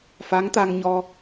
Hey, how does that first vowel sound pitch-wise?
rising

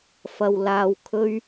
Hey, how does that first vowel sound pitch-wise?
low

